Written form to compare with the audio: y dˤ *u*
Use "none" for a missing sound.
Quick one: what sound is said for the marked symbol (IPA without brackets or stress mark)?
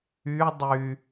y